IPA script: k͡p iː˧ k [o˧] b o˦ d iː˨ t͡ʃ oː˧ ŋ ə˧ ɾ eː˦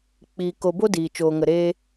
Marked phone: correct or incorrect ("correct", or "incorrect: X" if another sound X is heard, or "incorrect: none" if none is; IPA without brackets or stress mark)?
correct